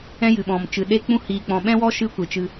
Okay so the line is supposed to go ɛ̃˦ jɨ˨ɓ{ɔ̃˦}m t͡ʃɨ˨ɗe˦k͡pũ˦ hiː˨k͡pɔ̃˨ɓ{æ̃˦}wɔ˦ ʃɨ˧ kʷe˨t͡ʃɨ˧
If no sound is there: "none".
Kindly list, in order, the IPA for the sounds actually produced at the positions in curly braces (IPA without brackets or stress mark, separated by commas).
ɔ̃˨, ɛ̃˦